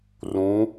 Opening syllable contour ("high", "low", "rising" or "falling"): rising